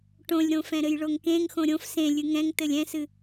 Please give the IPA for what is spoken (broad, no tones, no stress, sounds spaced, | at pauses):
ʈ õ lʲ ɾ õ f ɛ̃ ɾ ɘ j ɭ o ŋ k ẽ ŋ x õ ɾʲ õ f s ẽ lʲ ɨ ŋ ɛ̃ ŋ t ɘ lʲ ɛ̃ s ɨ